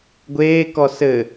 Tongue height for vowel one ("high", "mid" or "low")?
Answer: mid